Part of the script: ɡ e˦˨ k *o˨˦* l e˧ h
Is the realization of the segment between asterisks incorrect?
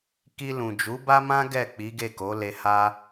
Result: no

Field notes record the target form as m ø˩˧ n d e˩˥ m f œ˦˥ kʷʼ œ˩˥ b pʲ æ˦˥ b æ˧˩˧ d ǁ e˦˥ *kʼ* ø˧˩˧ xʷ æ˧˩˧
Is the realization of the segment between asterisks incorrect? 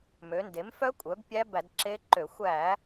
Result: yes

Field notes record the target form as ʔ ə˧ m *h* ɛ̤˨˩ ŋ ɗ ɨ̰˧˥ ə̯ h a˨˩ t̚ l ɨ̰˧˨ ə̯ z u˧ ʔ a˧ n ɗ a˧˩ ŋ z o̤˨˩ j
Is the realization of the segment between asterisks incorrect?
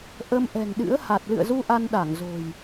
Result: yes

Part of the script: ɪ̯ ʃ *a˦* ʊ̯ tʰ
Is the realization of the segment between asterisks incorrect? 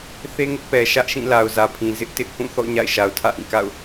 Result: yes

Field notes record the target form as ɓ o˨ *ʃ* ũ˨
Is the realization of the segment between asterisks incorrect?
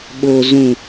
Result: yes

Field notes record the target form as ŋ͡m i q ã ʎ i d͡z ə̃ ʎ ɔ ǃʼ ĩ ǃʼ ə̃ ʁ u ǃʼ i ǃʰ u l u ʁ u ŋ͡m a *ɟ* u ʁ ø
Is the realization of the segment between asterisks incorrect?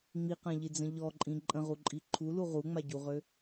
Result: no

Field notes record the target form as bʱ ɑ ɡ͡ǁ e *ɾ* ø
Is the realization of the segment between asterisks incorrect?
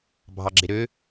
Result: no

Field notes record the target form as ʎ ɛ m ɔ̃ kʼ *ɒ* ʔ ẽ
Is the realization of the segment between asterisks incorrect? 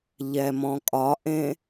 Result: no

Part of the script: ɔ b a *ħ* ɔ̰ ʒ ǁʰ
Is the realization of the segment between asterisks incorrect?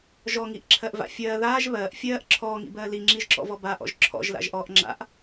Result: yes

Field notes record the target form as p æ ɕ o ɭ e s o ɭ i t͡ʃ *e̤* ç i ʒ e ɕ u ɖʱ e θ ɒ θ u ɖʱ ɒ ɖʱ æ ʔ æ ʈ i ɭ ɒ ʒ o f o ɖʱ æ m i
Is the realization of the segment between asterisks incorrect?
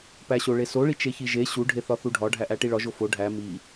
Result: yes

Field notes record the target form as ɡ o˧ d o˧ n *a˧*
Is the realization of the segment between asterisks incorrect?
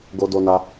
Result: no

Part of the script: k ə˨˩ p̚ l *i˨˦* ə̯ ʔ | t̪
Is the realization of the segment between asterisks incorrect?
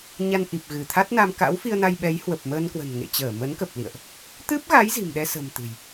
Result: yes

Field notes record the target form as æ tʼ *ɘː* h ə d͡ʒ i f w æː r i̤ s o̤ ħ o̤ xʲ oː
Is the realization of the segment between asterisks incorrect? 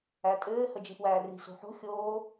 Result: no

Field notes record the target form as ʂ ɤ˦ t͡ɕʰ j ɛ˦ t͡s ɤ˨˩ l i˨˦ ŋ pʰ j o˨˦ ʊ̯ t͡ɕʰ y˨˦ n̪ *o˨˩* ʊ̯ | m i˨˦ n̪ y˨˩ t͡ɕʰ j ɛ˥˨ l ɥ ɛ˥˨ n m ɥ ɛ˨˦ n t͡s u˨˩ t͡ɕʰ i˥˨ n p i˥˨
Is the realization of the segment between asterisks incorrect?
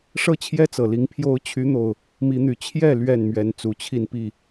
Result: no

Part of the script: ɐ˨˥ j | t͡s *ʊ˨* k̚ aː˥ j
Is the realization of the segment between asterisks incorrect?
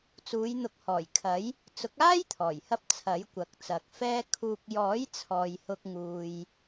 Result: yes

